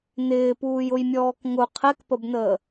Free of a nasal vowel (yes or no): yes